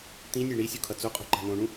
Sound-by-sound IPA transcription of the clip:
t̪ĩnʲe ɳisʲukʰʌ t͡soqʼo̤ǃa̤ nõɳũ

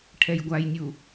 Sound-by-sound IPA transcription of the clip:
ʈʰɛjɡʷajnʲu

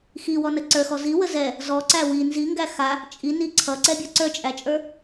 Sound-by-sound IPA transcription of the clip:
xiwɔnə ǀə˞xɔ ziwə zɛ | zɔǀæ wi nziŋɡæ xa | t͡ʃʼini ǀʰʌǀɛbʲɔ ǀə˞t͡ʃʼæt͡ʃʼə˞

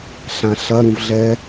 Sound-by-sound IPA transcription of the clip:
ɬãɬɐ ɾũvɮɛ

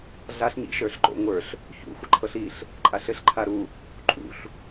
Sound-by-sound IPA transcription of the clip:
ɮaɬɲḭ ʃə˞ɬǃo̰ ŋʷə˞ɬ | çṵ xʷɘǃʰɤɬiɬ | ǃʼaɬɘɬǃʰaɾu | ǃʼṵɬ

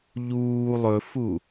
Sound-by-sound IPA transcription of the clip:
ʎuː lˠɵfu

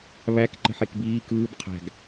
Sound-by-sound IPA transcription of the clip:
βæk ǃə̤ħekbiː kɯːb qʰæ̤ɡ

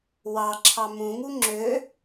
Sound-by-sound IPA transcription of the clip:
wɑǁʰɑ mũŋu ŋ͡ǁø

